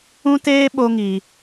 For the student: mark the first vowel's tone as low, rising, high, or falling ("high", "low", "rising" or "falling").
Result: high